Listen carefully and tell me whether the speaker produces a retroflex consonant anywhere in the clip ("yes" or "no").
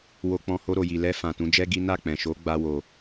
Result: no